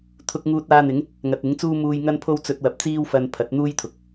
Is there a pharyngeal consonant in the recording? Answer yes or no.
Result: no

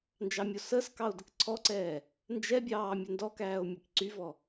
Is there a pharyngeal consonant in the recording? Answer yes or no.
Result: no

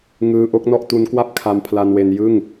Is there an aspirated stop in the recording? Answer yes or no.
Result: yes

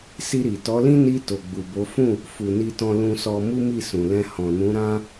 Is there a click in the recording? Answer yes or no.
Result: no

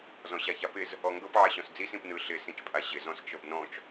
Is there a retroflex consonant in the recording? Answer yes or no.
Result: no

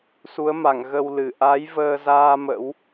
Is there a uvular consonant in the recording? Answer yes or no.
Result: no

